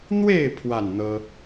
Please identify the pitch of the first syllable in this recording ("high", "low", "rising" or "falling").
falling